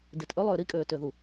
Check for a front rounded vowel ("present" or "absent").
present